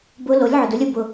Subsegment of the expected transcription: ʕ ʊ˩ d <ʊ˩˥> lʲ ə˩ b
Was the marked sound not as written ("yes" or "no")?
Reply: no